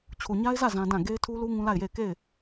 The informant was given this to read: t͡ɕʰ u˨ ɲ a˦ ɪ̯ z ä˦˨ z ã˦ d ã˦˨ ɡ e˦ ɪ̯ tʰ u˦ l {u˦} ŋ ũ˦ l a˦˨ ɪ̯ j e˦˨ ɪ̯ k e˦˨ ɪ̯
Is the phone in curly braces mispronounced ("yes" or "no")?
no